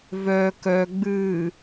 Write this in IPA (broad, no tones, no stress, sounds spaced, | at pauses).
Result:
v œ k œ ɡ͡b ɨː